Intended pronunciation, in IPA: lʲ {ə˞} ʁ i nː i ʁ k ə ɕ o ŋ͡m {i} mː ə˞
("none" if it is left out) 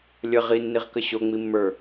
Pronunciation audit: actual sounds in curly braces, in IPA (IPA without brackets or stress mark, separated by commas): ə, i